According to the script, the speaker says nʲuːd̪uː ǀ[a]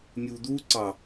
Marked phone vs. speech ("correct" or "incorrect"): incorrect